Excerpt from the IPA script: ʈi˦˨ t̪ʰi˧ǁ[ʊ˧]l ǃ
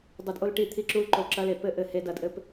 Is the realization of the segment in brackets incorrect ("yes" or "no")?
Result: yes